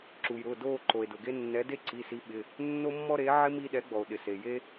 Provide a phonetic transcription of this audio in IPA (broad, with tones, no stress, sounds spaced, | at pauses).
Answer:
ǁ u˩ j ɾ ʊ˩˧˩ d o˥˧ ǃ o˩ e̯ d ʊ˩ ɡ e˥ nː ɛ˨˥ d e˥ ǀ i˩˧˩ s i˨˥ ɓ ɪ˩˧˩ | nː o˥ mː ɔ˥ ɾ e˨˥ ʕ ɪ˥ m i˥ ɗ ɛ˨˥ ɡ͡b ɔ˩ o̯ ɗ ɪ˩ s e˩ j e˥